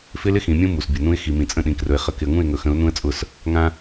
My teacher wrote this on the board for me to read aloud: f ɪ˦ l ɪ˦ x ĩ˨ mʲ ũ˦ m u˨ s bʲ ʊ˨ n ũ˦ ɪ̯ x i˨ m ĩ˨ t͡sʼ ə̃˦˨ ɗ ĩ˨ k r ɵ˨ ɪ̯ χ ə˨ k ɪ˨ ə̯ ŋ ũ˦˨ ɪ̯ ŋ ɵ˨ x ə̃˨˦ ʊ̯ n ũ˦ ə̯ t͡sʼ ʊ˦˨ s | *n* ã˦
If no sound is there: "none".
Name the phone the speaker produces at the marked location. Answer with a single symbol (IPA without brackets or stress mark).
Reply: ŋ